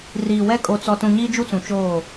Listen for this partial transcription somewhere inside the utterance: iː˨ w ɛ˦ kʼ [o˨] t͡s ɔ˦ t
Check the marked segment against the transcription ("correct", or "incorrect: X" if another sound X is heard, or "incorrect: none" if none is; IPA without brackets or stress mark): incorrect: o˦